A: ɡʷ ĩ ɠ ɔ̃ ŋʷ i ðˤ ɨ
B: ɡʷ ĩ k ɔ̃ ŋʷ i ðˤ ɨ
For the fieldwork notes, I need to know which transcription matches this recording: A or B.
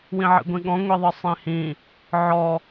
A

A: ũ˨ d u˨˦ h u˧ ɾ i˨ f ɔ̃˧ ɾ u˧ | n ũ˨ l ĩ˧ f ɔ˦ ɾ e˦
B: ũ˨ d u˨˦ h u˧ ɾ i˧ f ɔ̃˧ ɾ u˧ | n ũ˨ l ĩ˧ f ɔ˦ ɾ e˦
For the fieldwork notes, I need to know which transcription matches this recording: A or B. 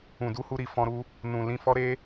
A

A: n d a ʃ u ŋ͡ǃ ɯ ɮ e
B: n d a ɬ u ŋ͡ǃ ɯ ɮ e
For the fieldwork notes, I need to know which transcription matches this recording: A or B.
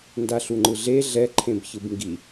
B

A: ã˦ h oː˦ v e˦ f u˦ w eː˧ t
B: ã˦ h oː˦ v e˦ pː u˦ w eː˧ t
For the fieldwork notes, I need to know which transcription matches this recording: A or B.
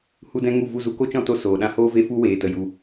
A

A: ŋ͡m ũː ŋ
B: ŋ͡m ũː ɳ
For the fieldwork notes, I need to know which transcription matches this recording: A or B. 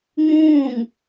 A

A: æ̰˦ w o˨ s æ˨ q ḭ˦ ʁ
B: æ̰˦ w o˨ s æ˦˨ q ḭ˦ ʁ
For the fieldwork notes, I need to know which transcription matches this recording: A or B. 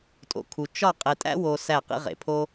B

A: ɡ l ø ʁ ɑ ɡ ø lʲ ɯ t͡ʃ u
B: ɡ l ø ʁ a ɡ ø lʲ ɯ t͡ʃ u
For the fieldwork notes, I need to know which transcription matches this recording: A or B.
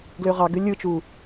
A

